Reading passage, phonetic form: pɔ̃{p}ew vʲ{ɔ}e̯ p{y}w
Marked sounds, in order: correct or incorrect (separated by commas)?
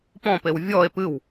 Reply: correct, correct, incorrect